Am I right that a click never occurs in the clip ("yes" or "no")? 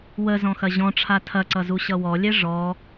no